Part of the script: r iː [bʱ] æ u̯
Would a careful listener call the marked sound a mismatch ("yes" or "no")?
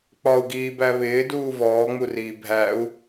no